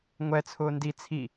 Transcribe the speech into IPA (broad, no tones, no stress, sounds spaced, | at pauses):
ŋʷ ɛ t͡sʰ ʊː n d i t͡sʰ i